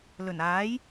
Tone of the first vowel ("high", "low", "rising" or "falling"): low